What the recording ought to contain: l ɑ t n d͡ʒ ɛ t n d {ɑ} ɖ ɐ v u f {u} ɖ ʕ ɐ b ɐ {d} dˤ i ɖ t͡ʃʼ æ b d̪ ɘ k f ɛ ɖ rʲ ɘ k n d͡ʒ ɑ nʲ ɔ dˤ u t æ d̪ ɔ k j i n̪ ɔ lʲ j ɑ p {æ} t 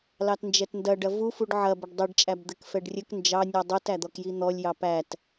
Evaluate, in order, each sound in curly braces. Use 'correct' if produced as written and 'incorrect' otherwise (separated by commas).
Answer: incorrect, correct, incorrect, correct